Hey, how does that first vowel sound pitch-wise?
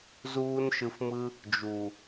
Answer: high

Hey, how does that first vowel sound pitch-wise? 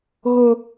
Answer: high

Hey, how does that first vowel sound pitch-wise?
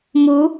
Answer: rising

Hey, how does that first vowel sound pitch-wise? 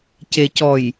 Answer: low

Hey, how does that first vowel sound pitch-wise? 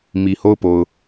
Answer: low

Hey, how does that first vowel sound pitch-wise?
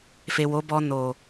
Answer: low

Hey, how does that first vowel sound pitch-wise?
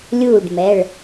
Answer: falling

